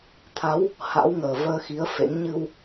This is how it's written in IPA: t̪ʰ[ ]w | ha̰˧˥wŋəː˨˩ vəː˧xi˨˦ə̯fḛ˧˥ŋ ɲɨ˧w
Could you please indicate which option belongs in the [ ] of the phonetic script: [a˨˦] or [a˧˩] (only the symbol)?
a˨˦